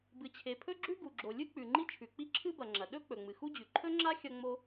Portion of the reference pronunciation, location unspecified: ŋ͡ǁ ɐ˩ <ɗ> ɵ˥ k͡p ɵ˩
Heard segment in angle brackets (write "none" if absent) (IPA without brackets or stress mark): ɗ